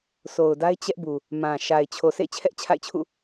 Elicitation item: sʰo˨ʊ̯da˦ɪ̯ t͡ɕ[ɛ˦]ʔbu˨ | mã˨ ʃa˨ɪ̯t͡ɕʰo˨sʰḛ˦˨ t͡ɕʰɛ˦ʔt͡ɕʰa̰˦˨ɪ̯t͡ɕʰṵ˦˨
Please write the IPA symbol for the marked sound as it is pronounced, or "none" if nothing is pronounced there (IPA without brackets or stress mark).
ɛ˦